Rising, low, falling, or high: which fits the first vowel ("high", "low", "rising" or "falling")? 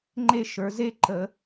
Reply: falling